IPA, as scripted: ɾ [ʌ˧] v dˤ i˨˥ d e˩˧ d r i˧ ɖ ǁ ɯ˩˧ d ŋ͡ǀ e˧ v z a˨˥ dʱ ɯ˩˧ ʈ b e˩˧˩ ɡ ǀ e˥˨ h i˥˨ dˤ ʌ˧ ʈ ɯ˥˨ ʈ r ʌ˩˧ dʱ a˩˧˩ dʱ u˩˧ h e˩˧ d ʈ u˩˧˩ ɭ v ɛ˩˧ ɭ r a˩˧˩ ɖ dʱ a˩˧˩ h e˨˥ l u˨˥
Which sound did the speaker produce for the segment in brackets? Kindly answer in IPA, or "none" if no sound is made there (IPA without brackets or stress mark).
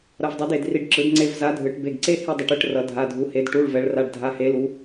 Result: ʌ˧